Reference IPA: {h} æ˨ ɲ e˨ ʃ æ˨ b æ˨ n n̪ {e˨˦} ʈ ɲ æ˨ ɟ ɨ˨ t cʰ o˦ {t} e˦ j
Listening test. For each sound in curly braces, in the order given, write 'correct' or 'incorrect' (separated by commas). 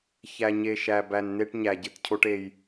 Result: incorrect, incorrect, incorrect